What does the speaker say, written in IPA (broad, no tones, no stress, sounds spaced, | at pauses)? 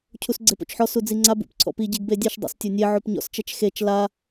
cʰ u s ɡ͡ǀ e p o̰ t͡ʃ ħ ɔ s u d͡z i ŋ͡ǀ a b ṵ p ǀʰ ɔ̰ p i ɟ e ɡ b e dʲ ɛ ʃ dˤ o̰ s tʲ o nʲ e ʕ o p ɲ ɔ̰ s t͡ʃ ɛ t͡ʃ x e t͡ʃ l a